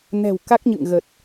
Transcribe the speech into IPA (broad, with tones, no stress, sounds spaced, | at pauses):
n ɛ̤˨˩ w k a˦˥ k̚ ɲ ɨ̰˧˨ ŋ ɣ ə˨˩ t̚